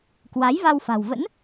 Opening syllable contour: rising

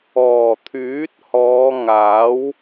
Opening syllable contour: low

